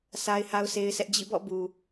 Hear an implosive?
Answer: no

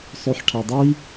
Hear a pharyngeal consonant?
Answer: yes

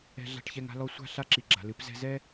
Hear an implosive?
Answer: no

